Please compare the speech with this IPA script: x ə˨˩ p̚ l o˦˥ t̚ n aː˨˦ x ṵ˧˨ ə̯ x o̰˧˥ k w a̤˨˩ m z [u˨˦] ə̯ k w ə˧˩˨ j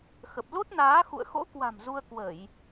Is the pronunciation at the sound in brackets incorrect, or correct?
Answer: incorrect: u˧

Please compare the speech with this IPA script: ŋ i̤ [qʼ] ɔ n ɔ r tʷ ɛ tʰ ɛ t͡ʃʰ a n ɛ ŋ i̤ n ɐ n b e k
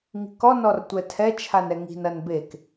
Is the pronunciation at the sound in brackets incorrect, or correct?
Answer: incorrect: k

